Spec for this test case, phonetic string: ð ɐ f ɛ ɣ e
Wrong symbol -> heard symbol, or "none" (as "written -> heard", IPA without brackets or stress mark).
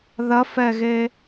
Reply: none